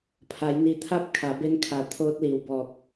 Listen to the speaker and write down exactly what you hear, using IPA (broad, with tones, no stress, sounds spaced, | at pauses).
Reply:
pʰ a˩˧ j n i˩ t̪ʰ a˧˥ p̚ kʰ a˩˧ b e˧ n kʰ a˩ t̪ʰ oː˧ t̚ l i˩ w b ɔː˧˩ k̚